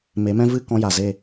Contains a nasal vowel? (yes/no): yes